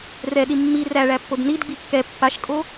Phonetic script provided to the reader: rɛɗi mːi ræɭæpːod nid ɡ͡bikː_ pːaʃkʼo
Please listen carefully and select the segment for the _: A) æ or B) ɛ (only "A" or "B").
B